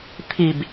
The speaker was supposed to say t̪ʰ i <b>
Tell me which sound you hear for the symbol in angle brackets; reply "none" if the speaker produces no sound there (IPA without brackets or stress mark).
b